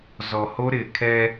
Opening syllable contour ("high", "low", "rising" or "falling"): low